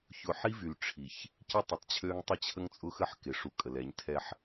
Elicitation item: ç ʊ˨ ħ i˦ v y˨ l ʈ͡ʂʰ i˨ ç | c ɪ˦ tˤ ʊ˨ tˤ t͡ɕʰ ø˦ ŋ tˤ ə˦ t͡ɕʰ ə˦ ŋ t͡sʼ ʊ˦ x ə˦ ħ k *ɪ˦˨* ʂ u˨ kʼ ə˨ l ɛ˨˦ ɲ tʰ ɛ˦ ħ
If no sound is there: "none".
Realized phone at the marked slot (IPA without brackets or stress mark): ɪ˨